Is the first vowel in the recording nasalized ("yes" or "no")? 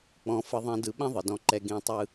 yes